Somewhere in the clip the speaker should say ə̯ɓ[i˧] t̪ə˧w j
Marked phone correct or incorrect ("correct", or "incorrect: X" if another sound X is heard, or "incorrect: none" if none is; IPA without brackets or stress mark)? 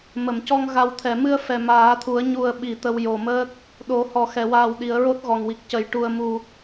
incorrect: i˨˩˨